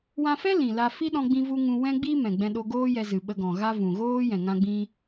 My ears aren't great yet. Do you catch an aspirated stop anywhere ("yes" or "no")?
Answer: no